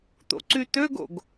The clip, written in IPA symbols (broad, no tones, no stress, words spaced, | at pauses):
t̪o̰ǀyt̪øɡo̰ɡ